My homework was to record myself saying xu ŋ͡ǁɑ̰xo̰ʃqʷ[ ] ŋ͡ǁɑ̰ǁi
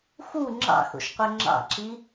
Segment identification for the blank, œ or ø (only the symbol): œ